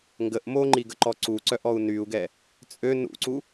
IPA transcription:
ŋ ɡ ə ʔ m o ŋ͡ǃ i ɡ ə ǃ ɔ ǀ u ǀ œ ʔ ɔ u̯ n y u̯ ɡ ɛ | t͡sʼ ø n ṵ ǀ u

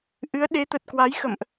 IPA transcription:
ʔ ɨ˨˦ ə̯ ɗ e˨˦ t̪ ə˨˩ t̚ k w a˨˦ j x ə̰˧˨ m ʔ

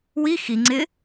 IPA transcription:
w i x i ŋ͡ǀ ɪ

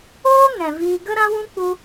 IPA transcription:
oː˦ ŋ ɛ̃˨ v iː˧ ɡ ə˦ ɾ ã˦ w ũ˦ k͡p u˧

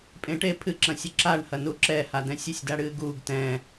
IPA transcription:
pʼ ẽ ʈ e pʰ ɨ ǁ ɐ̃ sʲ ɨ ǁ a ɳ h ɐ n u ǁ ɛ h a d ɛ̃ sʲ e sʲ d a ɽ ɨː ɡ uː ɡ t ɛ̃

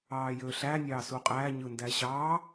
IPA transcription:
ɑː j ø ɬ æ nʲ ɑː s u qʼ æ ɲ ɯ n d æ ɕ ɑ

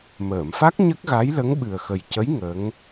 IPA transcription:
m əː˨˩˨ m f a˦˥ k̚ ɲ ə˦˥ k̚ ɣ a˧˥ j l ə˧˥ ŋ ɓ ɨ˨˩ ə̯ x ə˨˩ j c ə˧˥ j ŋ ə˧˥ ŋ

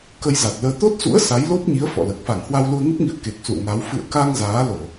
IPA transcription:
k ə˧ j z a˨˩ t̚ l əː˧ t̪ o˦˥ t̚ s ṵ˧˥ ə̯ s a˨˦ j l o˦˥ p̚ ɲ i˨˦ ə̯ f ɔ̰˧˨ l əː˨˩ k̚ f a˧˩ ŋ h w a˧ w l u˧ ə̯ ŋ ə˦˥ p̚ ŋ ḭ˧˨ ə̯ k e˨˩ k̚ s ṵ˧˨ ə̯ ŋ a˨˦ w f ɨ̰˧˨ ə̯ k a˧ ŋ z aː˨˦ l o˧˩˨

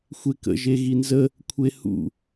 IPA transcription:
xʷ e k ə̰ ʒ e ɣ i n z ə | kʷʰ e h ṵ

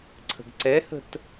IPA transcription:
ǀʰ ə̤ ɡ ǀ ɛ h ə̤ t

